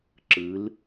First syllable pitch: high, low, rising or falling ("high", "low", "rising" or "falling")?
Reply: rising